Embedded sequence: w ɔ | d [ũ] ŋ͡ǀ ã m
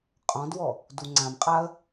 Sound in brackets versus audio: incorrect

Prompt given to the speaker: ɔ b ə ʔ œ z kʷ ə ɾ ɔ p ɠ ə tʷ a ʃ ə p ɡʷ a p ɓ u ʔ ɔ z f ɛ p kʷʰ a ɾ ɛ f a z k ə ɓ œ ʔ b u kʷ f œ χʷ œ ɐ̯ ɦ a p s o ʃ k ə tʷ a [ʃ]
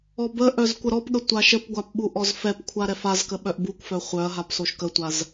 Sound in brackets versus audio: incorrect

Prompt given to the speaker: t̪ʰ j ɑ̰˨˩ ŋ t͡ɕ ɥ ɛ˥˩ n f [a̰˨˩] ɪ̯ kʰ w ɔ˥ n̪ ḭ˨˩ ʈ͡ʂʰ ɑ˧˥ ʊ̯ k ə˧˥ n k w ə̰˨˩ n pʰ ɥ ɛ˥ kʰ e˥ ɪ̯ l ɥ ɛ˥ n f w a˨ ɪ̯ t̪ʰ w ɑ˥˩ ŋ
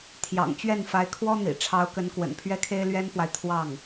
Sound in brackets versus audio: incorrect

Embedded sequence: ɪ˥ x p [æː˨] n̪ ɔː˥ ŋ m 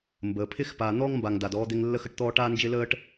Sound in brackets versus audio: incorrect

